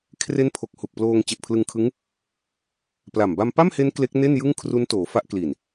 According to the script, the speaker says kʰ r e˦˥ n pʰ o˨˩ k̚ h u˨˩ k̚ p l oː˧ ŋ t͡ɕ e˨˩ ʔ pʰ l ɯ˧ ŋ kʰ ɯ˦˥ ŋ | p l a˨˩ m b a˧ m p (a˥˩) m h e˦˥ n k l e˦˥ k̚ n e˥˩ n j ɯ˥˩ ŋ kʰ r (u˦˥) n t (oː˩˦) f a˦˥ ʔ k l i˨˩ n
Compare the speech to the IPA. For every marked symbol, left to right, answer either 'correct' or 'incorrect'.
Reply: correct, correct, correct

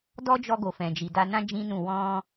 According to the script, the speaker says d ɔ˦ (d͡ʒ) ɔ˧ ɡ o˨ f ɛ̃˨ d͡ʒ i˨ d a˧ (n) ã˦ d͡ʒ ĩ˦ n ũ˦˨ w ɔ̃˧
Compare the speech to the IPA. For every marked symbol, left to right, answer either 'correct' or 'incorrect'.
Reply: correct, correct

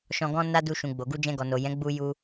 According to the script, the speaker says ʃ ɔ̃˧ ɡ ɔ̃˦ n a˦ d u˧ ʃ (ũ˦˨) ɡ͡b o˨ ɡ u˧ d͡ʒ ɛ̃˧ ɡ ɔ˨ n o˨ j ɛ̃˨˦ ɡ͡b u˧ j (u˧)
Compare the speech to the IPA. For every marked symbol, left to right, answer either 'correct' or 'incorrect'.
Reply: incorrect, correct

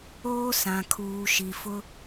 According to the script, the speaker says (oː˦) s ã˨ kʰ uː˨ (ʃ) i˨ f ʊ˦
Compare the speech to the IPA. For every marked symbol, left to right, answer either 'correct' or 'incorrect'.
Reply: correct, correct

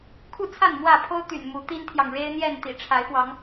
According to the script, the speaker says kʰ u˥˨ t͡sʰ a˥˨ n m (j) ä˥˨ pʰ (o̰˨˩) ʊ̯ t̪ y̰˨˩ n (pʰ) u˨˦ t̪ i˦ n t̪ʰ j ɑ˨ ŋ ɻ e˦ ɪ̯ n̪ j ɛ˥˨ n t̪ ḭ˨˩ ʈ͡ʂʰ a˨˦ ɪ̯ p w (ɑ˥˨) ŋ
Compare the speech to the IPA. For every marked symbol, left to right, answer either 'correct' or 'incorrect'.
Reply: incorrect, incorrect, incorrect, incorrect

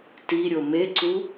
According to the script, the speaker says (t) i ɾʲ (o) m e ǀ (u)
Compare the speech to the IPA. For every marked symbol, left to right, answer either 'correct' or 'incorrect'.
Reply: correct, correct, correct

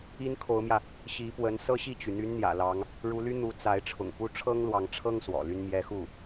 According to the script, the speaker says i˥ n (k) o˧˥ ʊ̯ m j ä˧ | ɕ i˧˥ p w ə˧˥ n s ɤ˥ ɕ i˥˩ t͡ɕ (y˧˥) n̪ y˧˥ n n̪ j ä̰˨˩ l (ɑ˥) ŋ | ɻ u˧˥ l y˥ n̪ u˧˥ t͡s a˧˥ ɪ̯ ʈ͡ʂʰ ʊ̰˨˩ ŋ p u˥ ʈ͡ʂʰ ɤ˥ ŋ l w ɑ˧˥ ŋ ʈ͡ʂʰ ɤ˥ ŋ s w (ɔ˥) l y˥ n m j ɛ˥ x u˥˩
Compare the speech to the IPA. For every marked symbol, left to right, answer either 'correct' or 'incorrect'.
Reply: incorrect, incorrect, incorrect, incorrect

